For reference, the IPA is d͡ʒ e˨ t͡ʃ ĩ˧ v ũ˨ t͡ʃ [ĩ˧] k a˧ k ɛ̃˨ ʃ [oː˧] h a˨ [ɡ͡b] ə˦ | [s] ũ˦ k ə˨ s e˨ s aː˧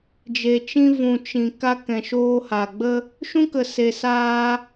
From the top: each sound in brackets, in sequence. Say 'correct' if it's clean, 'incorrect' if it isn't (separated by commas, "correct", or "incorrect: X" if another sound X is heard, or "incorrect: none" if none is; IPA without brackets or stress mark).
incorrect: ĩ˨, correct, correct, incorrect: ʃ